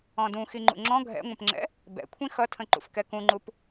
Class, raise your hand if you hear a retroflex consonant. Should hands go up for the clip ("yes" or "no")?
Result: no